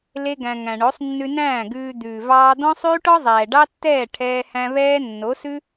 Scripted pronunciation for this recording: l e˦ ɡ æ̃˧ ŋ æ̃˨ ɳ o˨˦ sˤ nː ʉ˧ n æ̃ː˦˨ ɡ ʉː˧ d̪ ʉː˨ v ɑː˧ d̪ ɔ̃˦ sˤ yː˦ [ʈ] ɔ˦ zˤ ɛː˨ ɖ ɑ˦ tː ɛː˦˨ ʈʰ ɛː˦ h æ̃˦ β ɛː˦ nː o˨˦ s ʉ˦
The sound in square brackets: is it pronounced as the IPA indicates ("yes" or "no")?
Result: yes